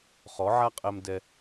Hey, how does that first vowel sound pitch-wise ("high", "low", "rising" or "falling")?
rising